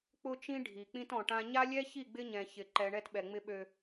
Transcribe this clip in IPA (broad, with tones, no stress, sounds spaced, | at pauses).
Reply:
k͡p ʊ˦ t͡ʃ ĩ˦ ɖʱ i˨ k͡p ĩ˦ t ɔ̃˨ ʈ ã˦ ɲ a˦ lʲ ɛ˦ ç i˦˨ ɡ͡b ɪ˦ ɲ ɛ̃˨ ç ɪ˨ ǃ ɛ˨ ɳ ɛ˦ t ɓ ɛ˨ ŋ͡m ɪ˦ ɓ ø˦